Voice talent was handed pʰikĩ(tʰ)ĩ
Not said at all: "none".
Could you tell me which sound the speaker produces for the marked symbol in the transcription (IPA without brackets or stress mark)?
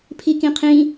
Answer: qʰ